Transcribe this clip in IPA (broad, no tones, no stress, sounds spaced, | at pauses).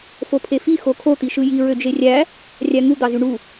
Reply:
f o pʰ e f i x o kʰ o t̪ i ʃ ɯ j i ɹ ø d͡ʒ e rʲ æ | rʲ æ ŋ u d̪ ɑ z y ɳ u